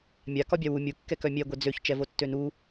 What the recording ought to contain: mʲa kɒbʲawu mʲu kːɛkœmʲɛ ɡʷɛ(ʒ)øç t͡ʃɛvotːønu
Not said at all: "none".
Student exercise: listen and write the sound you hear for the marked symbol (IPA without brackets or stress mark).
d͡z